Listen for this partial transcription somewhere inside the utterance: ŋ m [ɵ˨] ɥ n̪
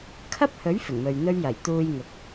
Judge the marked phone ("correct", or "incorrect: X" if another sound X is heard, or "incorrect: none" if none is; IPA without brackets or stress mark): correct